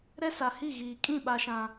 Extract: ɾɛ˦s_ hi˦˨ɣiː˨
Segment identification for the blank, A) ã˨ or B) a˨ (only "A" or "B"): B